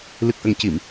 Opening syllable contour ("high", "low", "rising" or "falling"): low